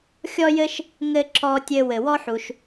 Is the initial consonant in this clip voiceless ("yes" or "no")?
yes